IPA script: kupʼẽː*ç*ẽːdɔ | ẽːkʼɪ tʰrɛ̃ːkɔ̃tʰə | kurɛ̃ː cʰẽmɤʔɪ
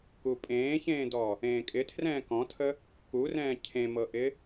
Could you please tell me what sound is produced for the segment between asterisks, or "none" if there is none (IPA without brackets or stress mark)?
ç